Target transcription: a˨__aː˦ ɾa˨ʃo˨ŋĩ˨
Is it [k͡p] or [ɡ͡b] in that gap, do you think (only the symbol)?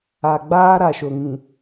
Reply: ɡ͡b